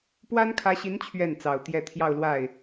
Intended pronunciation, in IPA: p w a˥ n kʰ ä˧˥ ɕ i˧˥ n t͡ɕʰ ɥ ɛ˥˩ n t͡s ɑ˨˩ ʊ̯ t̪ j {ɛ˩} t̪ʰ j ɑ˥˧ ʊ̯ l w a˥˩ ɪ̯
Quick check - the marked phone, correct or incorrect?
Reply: incorrect